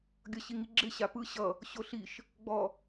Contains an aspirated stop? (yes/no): no